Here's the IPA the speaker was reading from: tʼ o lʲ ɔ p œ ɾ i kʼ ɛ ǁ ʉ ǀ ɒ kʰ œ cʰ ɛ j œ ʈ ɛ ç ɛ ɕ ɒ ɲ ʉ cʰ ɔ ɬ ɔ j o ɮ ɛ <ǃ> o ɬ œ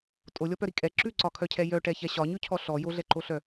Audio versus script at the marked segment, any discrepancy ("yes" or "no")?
no